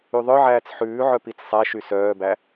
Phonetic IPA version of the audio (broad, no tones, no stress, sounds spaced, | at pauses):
y ðˤ œ ʕ æː t͡s ħ ʉː ʕ œ p i t͡s sˤ æ ʃ y s œː b æ